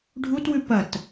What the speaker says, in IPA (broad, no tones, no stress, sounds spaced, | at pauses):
ɖʱ u t w ʉ p ɐ t